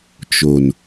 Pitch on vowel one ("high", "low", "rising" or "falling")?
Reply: low